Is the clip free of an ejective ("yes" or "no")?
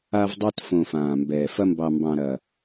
yes